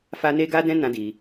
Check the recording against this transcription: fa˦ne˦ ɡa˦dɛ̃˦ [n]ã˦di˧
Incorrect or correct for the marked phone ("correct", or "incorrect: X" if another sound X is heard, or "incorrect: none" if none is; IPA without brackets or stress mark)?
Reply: correct